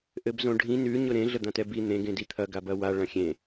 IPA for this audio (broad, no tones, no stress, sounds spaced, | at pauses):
ʔ ɘ b z õ ɖʱ ĩ n ʉ ɲ ʊ ɾ ẽ ɮ ə d̪ ã t ɛ b i n̪ ẽ ɡ ẽ d i t̪ʰ ɐ ɡ a b ɐ w a ɭ ɐ̃ xʲ ẽ